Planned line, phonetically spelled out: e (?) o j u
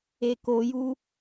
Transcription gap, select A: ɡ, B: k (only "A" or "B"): B